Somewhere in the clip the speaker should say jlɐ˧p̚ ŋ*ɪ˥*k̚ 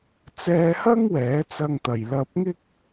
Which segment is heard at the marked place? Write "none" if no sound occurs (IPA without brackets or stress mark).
ɪ˥